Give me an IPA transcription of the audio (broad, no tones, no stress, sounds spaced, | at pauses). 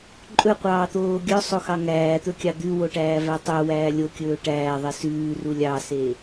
ǃʼ ɵ qʷ ɑː t̪ oː ɡʲ œ sˤ o x ɑ ŋ æː t̪ ɵ kʲ ɑ d̪ ʉ w o ʈ æː v æ tˤ œ w æː lʲ o kʲ ɵː ʈ æː ðˤ ɛ s ʉː r u lʲ ɑ s e